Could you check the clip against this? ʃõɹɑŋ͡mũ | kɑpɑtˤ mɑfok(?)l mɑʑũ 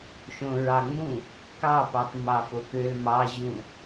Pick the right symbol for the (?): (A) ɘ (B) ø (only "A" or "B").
B